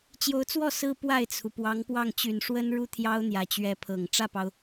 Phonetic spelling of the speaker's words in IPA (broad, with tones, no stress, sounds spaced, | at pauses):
t͡ɕ j o˧˥ ʊ̯ t͡s w ɔ˥˩ s ɹ̩˥ p w a˥˩ ɪ̯ t͡sʰ u˩ p w ɑ˧˥ ŋ p w ɑ˥˩ ŋ t͡ɕ y˨˩ n ʂ w ə˥ n ɻ u˥˩ t̪ʰ j ɑ˥ ʊ̯ n̪ j ä˨˩ t͡ɕ ɥ ɛ˧˥ pʰ ɤ˨˩ ŋ ʈ͡ʂ ä˥˩ p ɑ˩ ʊ̯